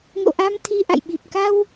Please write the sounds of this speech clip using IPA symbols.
ŋ o̰˧˨ ʔ a˧ m t̪ʰ i˧ ʔ a̰˧˨ j ɓ i˨˩ p̚ k a˧ w

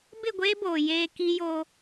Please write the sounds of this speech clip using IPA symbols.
b ɪ˦˨ ɡʷ eː˦ b oː˨ j eː˨ k i˦ j o˦

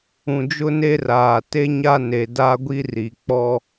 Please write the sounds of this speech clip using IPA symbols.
ũ˨ d͡ʒ ʊ˦ n e˦ r aː˨ t e˦ ɲ a˦ n e˨ d a˦ ɡʷ i˦ r i˨ k͡p ɔ˦

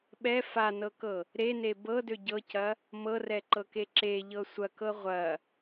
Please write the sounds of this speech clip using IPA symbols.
ɓ ɛ f a n ɤ k ɤ | ɾ e n e b ɤ d ø ɟ ɤ c ɐ | m ɤ r ɛ ǃ ɤ k e ǁ e ʎ ɤ sʷ ɐ k ɤ ʁʷ ɐ

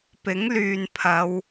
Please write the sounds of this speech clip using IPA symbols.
p ɪ˨˥ ŋ l yː˨ n pʰ ɐ˨˧ w

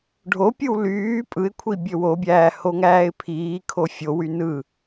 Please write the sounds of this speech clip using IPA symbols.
ɖʱ o pʲ ɯ w l yː pʼ ɯ ɪ̯ kʷʰ i bʲ ø w o bʲ æː h o ŋ æː ɪ̯ pʰ iː kʰ o fʲ o w y n ɯ

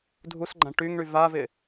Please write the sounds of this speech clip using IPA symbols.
dʱ u s ɡ͡ǃ ã ʈ y ŋ ɳ y v a v ɪ

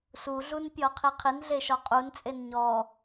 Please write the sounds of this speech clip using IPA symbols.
s u ɮ u n pʲ ɔ qʰ i qʰ i n ɮ e ʃ ɒ qʼ u n t͡sʼ e n ɲ ɔ

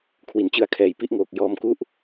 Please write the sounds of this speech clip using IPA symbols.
kʰ w i˨˩ n t͡ɕ ɯ˧ a̯ kʰ ɛː˨˩ j p i˦˥ ʔ ŋ oː˨˩ k̚ j ɔː˧ m k u˥˩ ʔ

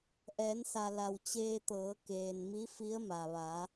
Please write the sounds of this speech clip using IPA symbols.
ʔ ɛː˩˧ n s a˩ l a˩ w t͡ɕ eː˧ t̪ ɤː˩˧ k eː˩ n m i˧˥ f i˧˥ ə̯ m a˩ ʋ a˩˧

